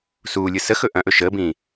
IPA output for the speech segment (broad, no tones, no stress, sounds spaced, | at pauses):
s uː lʲ ɯ s ə x ɵ ʔ ɐ̃ ʔ ɵ ʃ əː b ĩː